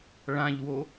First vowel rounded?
no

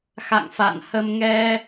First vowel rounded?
no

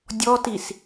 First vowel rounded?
yes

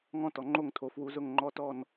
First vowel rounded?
yes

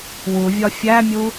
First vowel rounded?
yes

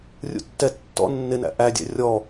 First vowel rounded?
yes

